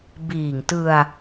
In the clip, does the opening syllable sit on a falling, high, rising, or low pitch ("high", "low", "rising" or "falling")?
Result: low